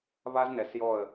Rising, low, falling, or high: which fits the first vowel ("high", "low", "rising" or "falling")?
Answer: high